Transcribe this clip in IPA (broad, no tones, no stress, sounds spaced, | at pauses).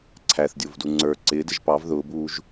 ǀʰ æ θ dʲ ʊː v d u ŋ͡ǀ ə˞ ǀ ɪː d ɪ ʒ p ɑ v ð ʊː b uː ʒ